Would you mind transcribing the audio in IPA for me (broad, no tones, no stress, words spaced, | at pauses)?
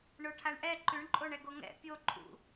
ɳoʈʰaɳʔɛ ǃʉɳǃʼoɳɛɡo ŋɛ̰ pʲoǃʼṵ